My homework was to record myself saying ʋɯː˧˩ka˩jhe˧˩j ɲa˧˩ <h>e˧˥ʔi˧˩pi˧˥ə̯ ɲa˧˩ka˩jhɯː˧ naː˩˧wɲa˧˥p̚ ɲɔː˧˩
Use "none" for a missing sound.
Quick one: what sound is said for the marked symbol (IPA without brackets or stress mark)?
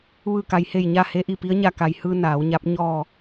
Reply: h